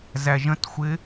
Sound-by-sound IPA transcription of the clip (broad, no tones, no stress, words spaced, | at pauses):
zæʒə̃txʷɪ